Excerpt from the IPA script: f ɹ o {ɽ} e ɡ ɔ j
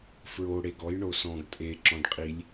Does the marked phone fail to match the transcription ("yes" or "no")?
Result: no